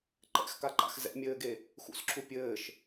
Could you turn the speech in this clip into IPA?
ǃ ɛ̰ x k a ǃ a̰ x z ɛ̰ mʲ ɘː ɡ e | x ṵ s ǁʰ u pʲ ɘː ʃ

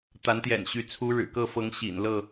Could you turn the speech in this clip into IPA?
t̪ a˨˦ n t̪ j ɛ̰˨˩ n ɕ y˨˦ t͡sʰ u˨˦ ɻ ɻ̩˨˩ k ɤ˥˨ f ɤ˨˦ ŋ ɕ ḭ˨˩ n l ɤ˥˨

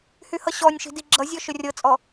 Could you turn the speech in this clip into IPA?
h y h ʌ ɕ ɔ nʲ ʃ i̤ d i ɡ͡ǁ ʌ zʲ ɔ ʃ ɵ rʲ ɤ t͡sʼ ɔ

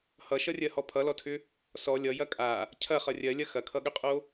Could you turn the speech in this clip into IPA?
h ʌ ʃ ʌ rʲ ɜ h ɔ pʰ ʌ l ɔ tʰ ʏ | s ɔ lʲ ʌ j ɐ kʼ a | cʰ ɐ χ ʌ rʲ ɜ lʲ ɐ x ɐ kʰ ʌ ɠ ʏ qʼ o

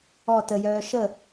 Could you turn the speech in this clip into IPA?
ɔ t ə j œː ʃ ə

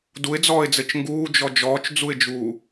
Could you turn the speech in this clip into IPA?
d u ɪ̯ d͡z ɔː ɪ̯ d͡z ɘ t͡ʃ ŋ ɡ uː d͡ʒ ɔ d͡ʒ ɔː t͡ʃ d͡z u ɪ̯ d͡ʒ uː

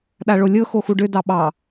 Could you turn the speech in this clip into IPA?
ɗ a ɭ o lʲ ɤ x o x u ɖ ʏ d ɑ ɓ ɑ

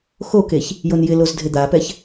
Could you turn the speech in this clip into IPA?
x o k e ç | j o n j ɪ l o z dʱ ɪ d̪ a p ɛ ç

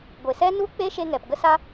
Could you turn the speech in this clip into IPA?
ɡʷ e˨ s ɛ˦ n u˦ k͡p e˦ ʃ e˧ ŋ ɛ˨ p ɡ ə˦ s a˦

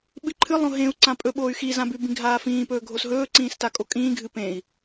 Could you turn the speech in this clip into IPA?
ɓ ɨ ǃʰ ɨ lˠ õ ɦ ẽ u̯ ǀ ã pʼ ɵ ɓ oː y̯ x i z ã b ʉ b ĩ ɡʱ aː f ĩː p ɵː ɡʱ o s ɦ ɵː ǀ ĩː s t a kʼ o kʼ ĩː ɡʱ ɨ p ẽ i̯

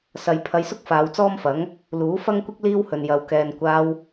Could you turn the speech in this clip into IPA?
s ɐ˨ j pʰ ɐ˧ j s ʊ˥ k̚ f aː˨˧ w t͡s ɔː˥ m f ɐ˨˥ ŋ | l uː˨˥ f ɐ˥ ŋ kʷ ɪ˥ k̚ l iː˥ w h ɵ˨ n j ɐ˨ w k ɛː˨ n kʷ aː˧ w

